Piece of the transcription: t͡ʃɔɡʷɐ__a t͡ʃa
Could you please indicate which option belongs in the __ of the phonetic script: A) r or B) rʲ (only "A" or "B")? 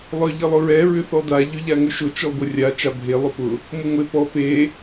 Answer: B